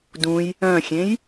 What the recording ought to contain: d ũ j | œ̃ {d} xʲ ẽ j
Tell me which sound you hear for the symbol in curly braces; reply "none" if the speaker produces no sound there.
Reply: none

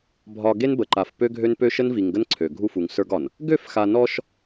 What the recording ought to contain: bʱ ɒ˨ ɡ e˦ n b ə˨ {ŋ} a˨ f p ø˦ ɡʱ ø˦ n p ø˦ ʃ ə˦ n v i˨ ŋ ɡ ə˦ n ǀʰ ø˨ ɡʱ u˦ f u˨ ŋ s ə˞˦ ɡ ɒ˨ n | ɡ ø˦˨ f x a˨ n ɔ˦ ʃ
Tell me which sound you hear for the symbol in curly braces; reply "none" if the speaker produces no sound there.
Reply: ǃ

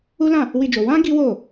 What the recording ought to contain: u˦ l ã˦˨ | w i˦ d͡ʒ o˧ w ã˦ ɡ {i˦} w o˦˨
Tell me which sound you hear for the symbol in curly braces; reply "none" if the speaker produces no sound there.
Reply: i˦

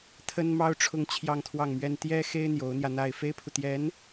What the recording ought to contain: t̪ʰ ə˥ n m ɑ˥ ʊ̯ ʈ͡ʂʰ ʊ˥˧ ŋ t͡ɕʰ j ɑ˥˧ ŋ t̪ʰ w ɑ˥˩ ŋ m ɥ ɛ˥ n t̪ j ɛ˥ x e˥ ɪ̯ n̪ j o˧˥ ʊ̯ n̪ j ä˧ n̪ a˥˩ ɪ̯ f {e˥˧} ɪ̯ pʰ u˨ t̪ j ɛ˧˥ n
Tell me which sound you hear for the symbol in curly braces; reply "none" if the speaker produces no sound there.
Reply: e˥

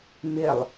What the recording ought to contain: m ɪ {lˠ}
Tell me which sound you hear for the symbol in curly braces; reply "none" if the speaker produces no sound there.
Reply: lˠ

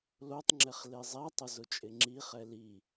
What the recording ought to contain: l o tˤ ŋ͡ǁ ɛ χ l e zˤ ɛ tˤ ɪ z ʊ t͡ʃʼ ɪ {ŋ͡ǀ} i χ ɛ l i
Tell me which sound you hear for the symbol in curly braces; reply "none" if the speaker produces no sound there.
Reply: ŋ͡ǁ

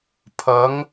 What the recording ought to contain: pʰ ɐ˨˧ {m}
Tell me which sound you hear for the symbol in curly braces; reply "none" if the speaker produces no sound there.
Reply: ŋ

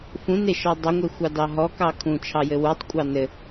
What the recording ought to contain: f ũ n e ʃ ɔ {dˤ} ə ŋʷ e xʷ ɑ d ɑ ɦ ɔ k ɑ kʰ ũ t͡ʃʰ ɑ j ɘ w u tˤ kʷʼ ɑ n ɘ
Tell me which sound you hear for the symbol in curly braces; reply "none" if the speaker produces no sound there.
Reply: dˤ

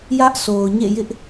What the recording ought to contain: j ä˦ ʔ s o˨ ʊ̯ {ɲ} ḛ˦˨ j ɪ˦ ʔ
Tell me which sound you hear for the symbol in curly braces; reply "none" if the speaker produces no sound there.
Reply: ɲ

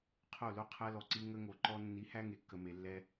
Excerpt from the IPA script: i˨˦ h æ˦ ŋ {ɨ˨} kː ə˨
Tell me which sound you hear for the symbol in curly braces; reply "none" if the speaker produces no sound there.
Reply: e˨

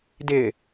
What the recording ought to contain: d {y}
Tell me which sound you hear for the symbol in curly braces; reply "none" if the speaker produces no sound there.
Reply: ɪ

